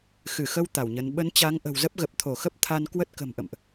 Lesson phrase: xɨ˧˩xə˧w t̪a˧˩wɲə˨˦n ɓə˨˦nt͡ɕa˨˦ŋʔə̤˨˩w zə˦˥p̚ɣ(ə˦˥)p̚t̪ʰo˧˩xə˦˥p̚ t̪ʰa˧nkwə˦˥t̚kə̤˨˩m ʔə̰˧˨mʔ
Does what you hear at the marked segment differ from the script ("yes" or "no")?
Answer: yes